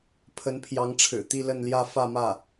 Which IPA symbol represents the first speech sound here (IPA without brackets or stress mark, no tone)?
pʰ